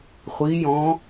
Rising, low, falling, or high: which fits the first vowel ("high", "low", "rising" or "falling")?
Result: rising